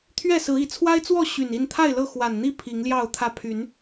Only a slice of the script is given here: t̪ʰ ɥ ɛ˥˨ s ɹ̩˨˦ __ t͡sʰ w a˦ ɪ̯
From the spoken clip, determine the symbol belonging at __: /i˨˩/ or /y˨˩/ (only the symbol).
i˨˩